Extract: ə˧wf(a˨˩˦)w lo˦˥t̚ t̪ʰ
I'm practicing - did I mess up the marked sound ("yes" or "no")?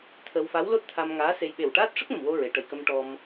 yes